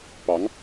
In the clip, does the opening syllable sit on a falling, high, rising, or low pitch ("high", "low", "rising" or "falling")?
rising